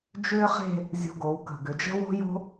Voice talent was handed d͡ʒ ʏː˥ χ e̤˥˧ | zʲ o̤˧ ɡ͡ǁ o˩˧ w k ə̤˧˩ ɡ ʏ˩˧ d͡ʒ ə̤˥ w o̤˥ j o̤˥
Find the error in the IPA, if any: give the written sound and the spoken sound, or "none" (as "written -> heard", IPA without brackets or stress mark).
ɡ͡ǁ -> ɡ